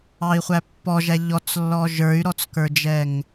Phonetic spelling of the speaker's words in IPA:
ɑ i̯ χʷ æ pː ɔ ʒ æ ʎ ɔ t͡s lː ɔ ʒ ə˞ y̯ ɾ ɔ t͡s k ə˞ d͡ʒ ɛ ŋ

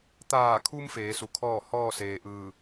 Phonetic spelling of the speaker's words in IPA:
t̪ aː˧˩ kʰ u˧ m f eː˩˧ s u˩˧ kʰ ɔː˥˨ h ɔː˥˨ s eː˩ ʔ ɯː˧˩

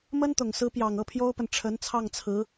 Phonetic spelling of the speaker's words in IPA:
m ə˥ n t̪ ʊ˨˩ ŋ s ɹ̩˧˥ p j ɑ˨˩ ŋ ɤ˥˩ pʰ j o˥ ʊ̯ p ə˨ n ʈ͡ʂʰ ə˧˥ n t͡sʰ ɑ˥˩ ŋ t͡sʰ ɹ̩˧˥

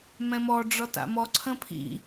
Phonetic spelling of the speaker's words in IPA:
m ɛ̃ m ɔ ɖ͡ʐ ɔ t a̰ m ɔ ǀʰ ə̃ pʰ ḭ

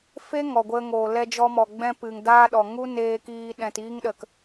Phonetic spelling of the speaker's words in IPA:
f e˦ ŋ ɔ˨ ɡʷ ə˧ ŋ oː˨ l ɛ˧ d͡ʒ ɔ˧ m ɔ˨ ɡ͡b ɛ̃˧ p ɨ˨ ŋ d aː˦ ɗ ɔ˨ ŋ u˦ n eː˧ k iː˧ ɗ ɛ̃˨ t iː˦ ŋ ɗ ə˨ k

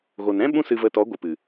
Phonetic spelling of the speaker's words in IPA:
ɣ o˨ n ɾ ɛ̃˦ ɓ ũ˦ s ɨ˧ v ə˧ t ɔ˨˦ ɡʷ ɨ˨ p ɨ˨

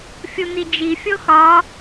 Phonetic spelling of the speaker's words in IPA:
fʲ u n̪ i d͡ʒ i fʲ o x ɒ

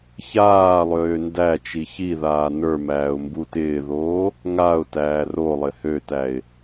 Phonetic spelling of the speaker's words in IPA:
ç aː lˠ øː n d æ t͡ʃ i ç i ð aː n ə˞ m æː ʊ̯ m b u t ɪː ð oː | ŋ a ʊ̯ t æː r o lˠ ɪ h ø t æ ɪ̯

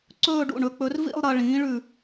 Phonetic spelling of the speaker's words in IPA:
ǀ ɵː˥˧ ɖ ṵ˧˩ ɳ ɵ˩˥ k͡p ɵ˩˥ r v ḭ˥˧ lˠ ɾ ɐ˧ ɭ ĩː˩˥ ɭ ʉ˧˩

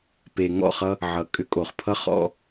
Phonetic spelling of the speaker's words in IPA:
p e˨ ŋ ɔ̰˦˨ χ ʌ˧ | ʕ ʌ˨ kʼ ʏ˧ kʼ o˨ χ pʰ ʌ˦ χ ɔ̰˦

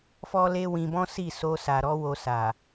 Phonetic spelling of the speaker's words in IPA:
f ɔ˦ l e˦ w ĩ˧ b ɔ̃˦ s i˦˨ s o˧ s a˨ ɾ ɔ˧ w o˧ s a˨

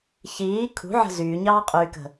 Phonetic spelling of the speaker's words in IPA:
ç iː kʰ ṳ ʕ ə̤ z yː ɲ ɑː qʼ yː k ə̤

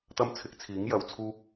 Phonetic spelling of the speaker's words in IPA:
t̪ ɐ˥ m t͡sʰ ɪ˨˥ k̚ t͡sʰ iː˨˥ ŋ j ɐ˨˧ w t͡sʰ uː˥ k̚

